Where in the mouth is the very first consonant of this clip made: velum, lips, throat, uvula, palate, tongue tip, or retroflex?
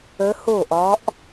throat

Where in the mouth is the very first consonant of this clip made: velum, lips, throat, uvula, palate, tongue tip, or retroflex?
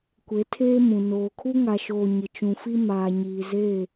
velum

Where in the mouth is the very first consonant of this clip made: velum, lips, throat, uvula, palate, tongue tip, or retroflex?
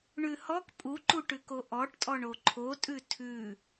retroflex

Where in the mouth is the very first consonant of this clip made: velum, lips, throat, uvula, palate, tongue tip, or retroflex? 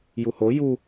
palate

